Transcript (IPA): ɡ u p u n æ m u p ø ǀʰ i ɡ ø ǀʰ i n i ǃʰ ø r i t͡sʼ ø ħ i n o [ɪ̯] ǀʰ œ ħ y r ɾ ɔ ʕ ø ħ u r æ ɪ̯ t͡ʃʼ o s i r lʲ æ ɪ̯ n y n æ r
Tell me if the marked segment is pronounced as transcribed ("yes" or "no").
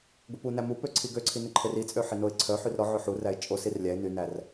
yes